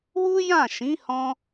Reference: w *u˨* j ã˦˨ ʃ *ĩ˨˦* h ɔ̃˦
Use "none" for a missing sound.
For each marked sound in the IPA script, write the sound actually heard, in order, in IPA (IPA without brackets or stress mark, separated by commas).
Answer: u˦, ĩ˨˦